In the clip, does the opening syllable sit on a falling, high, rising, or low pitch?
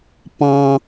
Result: high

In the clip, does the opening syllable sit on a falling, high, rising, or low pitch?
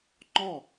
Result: falling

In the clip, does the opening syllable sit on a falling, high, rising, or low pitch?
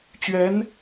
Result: rising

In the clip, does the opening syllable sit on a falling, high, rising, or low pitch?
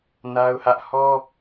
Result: high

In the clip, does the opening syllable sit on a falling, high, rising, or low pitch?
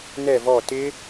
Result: falling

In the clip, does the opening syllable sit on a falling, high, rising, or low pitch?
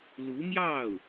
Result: rising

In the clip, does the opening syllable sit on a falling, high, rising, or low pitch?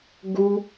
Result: high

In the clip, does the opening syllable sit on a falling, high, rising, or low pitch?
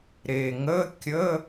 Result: low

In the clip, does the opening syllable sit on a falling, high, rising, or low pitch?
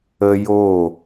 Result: high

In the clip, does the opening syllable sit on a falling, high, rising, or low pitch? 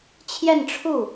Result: falling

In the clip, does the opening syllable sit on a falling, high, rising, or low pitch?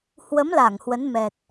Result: rising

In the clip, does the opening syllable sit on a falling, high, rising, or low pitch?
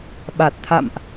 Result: low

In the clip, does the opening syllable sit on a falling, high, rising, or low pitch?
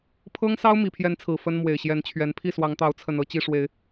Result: high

